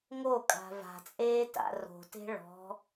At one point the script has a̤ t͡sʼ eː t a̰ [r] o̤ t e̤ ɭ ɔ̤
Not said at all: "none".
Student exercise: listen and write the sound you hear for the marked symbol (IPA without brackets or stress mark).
r